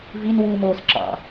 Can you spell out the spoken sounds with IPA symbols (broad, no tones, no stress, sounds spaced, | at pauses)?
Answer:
v i n w uː m oː s ǁ ɑ̰